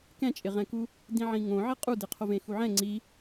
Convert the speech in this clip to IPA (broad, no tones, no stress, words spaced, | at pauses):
kɛ̃t͡ʃʼɪʁɛ̃ku | dĩʕĩŋõ ʕɪqʼudɪ qʰovẽxuʕɛ̃ ŋ͡ǀi